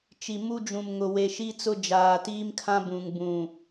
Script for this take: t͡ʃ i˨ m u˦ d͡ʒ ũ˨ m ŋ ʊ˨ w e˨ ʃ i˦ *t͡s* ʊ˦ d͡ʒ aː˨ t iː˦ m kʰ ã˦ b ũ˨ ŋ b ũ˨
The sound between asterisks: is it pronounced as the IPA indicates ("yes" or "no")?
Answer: yes